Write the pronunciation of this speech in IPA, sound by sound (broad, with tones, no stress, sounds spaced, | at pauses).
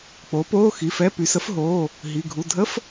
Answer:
k͡p o˩˥ p oː˧˥˧ x i˩˧˩ f ɛ˧˥˧ p y˩˥ s ə˩˥ f ɦ oː˩˧˩ | ɦ i˩˧˩ ɡʱ u˩˧˩ dʱ ə˧˥˧ f